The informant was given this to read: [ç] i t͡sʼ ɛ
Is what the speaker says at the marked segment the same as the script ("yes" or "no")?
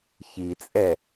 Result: yes